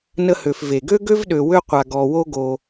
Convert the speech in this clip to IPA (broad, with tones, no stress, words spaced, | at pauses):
nə˦hø˨f ve˩ɡø˥ɡø˥v ɗø˨wø˦ qʷa˨ ɡɔ˨wo˦ɡo˨